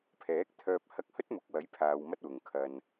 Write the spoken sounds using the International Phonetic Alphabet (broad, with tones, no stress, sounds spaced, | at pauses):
pʰ ɛː˨˥ k̚ t̪ʰ œː˧ p̚ h ɐ˧ k̚ h ɵ˥ t̚ m ʊ˨˥ k̚ w ɐ˨˥ j pʰ aː˧ w m ɐ˥ t̚ w ʊ˨ ŋ kʰ ɐ˨ n